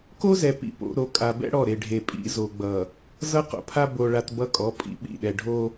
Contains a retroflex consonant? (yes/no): yes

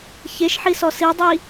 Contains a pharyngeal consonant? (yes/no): yes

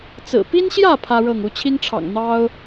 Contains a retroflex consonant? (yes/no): yes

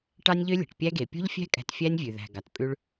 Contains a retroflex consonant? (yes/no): yes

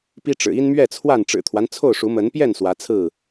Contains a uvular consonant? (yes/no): no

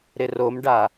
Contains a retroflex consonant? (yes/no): yes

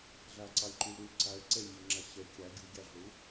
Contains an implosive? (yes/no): no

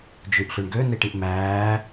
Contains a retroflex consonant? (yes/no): yes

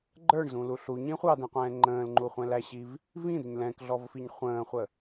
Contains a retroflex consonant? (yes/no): yes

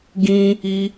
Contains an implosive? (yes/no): no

